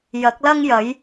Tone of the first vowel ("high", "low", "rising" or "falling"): rising